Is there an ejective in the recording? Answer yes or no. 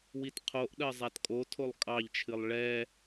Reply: yes